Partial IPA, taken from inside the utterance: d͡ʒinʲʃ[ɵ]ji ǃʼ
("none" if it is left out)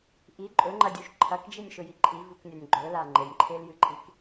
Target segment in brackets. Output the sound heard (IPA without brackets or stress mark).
ɵ